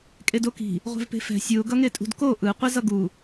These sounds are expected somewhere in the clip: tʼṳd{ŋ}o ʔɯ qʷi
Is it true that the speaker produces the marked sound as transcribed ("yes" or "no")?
no